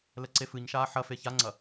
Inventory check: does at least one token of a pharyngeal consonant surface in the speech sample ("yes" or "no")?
yes